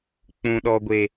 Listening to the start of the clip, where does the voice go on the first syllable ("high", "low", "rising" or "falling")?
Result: low